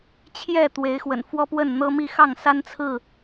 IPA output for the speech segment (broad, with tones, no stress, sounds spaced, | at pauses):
t͡ɕʰ j ɛ˥˨ t̪ w e˨˦ ɪ̯ x w ə̰˨˩ n f w ɔ˦ p w ə˥˨ n n̪ ɤ˦ m i˥˨ x ɑ˥˨ ŋ s a˦ n t͡sʰ ɹ̩˥˨